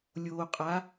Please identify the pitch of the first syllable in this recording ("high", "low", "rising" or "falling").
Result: low